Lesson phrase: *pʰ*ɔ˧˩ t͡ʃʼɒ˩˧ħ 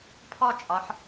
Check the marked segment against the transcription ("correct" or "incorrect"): correct